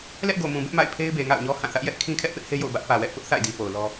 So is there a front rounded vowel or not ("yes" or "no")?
no